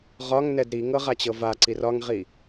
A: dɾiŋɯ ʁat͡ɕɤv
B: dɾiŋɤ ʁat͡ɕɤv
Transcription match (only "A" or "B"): B